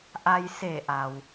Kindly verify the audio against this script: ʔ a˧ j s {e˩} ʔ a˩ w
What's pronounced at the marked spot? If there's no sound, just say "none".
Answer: e˧˩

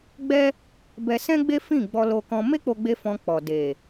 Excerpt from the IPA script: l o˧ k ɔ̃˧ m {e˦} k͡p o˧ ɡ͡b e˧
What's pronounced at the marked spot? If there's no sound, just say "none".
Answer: e˦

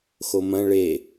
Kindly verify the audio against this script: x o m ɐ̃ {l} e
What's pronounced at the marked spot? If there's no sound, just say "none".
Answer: ɭ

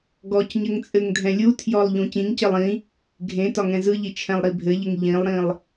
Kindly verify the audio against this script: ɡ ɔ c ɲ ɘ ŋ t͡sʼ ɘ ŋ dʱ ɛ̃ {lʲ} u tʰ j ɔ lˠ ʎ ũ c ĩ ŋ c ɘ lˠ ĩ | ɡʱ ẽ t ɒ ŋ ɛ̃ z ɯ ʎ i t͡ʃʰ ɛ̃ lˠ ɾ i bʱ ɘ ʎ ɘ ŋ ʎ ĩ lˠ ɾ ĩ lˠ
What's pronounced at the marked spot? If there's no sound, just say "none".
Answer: lʲ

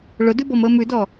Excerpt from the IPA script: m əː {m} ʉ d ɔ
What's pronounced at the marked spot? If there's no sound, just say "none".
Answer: m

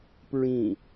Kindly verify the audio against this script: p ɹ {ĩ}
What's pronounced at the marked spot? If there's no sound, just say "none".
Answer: ĩ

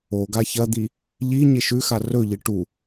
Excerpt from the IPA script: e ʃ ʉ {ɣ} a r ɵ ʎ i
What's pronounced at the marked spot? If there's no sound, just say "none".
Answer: x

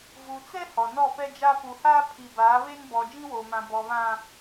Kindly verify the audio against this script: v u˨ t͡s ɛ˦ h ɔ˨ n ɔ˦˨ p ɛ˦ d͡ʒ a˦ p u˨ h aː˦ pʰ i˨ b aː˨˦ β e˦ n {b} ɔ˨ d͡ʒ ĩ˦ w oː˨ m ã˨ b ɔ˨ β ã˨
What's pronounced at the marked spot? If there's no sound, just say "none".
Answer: b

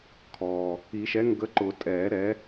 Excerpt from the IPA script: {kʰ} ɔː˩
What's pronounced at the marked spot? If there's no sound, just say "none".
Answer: kʰ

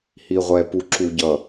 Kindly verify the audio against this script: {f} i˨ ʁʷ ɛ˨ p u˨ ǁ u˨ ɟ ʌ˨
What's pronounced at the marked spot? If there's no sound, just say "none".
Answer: h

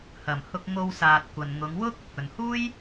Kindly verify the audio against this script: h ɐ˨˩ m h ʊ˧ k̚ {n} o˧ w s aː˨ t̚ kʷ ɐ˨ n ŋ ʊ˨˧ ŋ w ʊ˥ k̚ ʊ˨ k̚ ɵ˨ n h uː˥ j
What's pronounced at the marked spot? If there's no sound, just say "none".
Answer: ŋ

